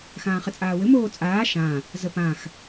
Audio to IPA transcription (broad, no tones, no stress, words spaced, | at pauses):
xãːχət͡sʼaːwɘ moːt͡sʼaː ʃã | zəpãx